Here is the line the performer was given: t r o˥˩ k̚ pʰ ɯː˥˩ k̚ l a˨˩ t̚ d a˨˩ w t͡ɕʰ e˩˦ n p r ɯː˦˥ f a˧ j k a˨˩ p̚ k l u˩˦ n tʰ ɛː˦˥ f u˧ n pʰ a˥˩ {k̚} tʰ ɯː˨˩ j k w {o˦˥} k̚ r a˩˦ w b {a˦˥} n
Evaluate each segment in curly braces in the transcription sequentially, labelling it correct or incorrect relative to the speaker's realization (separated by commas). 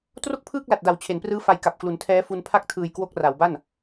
correct, correct, incorrect